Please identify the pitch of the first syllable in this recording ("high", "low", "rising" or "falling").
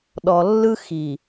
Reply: low